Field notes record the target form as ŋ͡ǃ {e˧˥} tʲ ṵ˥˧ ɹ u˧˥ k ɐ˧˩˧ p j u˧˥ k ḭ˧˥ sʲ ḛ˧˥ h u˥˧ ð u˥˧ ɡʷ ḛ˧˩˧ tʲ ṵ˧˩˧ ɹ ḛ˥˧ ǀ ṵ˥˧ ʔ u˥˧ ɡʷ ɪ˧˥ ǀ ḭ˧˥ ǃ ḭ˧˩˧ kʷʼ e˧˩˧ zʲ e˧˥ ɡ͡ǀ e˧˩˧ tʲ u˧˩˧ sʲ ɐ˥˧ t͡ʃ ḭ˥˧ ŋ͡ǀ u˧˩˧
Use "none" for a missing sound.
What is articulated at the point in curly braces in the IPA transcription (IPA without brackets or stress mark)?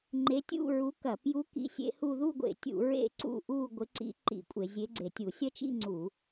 e˧˥